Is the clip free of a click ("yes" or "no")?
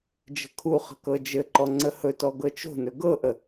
no